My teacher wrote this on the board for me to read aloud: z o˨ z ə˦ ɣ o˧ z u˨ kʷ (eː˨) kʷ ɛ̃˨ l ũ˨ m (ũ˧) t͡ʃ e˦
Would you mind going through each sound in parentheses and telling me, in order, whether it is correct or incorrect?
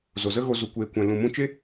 correct, correct

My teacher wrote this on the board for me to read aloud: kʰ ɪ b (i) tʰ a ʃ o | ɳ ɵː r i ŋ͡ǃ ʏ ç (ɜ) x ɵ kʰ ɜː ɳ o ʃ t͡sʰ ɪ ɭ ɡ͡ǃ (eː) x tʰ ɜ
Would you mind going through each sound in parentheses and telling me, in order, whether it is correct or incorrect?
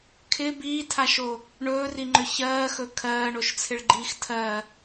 incorrect: iː, incorrect: ɜː, incorrect: iː

